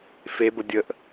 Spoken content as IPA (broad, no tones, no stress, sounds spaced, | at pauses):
f e b ə dʲ ə ʔ